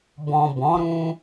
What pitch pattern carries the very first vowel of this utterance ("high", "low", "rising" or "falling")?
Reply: low